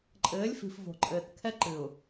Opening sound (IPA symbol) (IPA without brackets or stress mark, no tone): ǃʼ